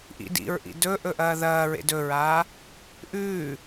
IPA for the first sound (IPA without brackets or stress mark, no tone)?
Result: ʔ